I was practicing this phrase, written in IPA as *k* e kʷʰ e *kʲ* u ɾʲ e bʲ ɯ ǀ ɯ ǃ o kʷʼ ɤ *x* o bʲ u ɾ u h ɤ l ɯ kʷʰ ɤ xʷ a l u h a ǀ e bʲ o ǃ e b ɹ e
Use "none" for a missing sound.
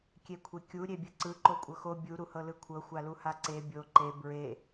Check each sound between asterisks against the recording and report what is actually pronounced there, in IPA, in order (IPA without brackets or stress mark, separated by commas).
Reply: kʲ, kʲ, x